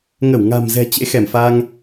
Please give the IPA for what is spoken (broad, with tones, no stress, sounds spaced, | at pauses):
ŋ ə˧˩ w ŋ a̤˨˩ m z ɛ̤˨˩ t͡ɕ ḛ˧˥ x ɛ˧˩ m f a˧ ŋ